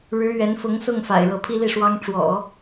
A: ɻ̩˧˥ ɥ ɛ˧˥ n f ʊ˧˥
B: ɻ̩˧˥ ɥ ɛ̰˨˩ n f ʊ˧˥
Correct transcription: A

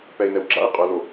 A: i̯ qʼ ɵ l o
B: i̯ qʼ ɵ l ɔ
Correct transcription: A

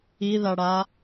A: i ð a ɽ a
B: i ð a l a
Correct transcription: A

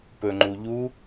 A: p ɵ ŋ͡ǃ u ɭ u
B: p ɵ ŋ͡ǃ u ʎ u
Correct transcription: B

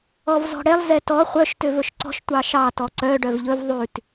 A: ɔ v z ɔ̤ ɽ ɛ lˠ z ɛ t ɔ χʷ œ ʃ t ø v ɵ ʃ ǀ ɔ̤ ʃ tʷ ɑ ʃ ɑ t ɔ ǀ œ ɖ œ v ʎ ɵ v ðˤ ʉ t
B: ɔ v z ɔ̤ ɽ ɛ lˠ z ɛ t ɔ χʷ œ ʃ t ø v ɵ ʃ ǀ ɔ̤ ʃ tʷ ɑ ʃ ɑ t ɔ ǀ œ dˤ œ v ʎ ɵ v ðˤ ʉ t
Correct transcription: A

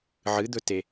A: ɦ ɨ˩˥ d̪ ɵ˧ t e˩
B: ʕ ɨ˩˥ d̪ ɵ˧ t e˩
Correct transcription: B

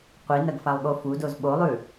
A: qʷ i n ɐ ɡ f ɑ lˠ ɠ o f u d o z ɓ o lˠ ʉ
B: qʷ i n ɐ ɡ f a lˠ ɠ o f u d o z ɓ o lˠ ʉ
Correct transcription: B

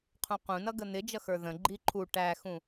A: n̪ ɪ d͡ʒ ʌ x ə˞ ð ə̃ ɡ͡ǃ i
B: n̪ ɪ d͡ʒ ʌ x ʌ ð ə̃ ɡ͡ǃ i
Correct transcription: A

